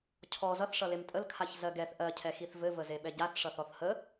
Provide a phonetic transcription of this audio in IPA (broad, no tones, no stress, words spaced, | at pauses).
cʰɔ zʌθ ʂʌlemtʼəl kʰaçzɜɡɛθ ʔɜ cʰɛxiθvɘ vəzeɓɛɟaθ ʂʌθɔθhə